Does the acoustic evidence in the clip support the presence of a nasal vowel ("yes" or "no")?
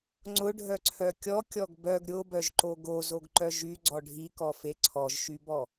no